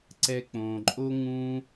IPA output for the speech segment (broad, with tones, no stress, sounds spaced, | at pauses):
ǀ ɛ˦ k͡p õː˧ ǃʼ o˦ ŋ ũ˦